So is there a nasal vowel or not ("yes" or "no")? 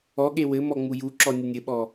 no